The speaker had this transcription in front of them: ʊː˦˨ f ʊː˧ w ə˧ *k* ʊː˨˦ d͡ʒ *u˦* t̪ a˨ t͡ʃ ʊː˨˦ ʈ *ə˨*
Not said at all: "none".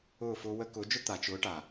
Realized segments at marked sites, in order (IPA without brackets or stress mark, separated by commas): k, ʊ˦, a˨